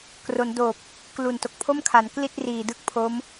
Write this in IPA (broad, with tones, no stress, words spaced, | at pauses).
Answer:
kro˩˦n doː˨˩p̚ | klu˨˩n to˨˩k̚pʰo˥˩mkʰa˩˦n kli˥˩t̚riː˨˩ dɯ˥˩k̚pʰo˦˥m